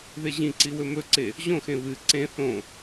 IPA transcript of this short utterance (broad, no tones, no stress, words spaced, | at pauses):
ðeʑĩǀi wɵmɵǀe | ʑõxẽ βɨ ǀẽ θõ